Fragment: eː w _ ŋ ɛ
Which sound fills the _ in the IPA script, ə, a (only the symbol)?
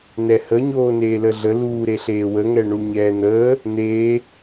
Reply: ə